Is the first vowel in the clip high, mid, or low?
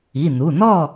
high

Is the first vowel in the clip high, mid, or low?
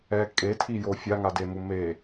mid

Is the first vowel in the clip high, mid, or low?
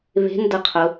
mid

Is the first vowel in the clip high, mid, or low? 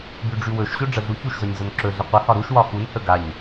high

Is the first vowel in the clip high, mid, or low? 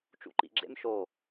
high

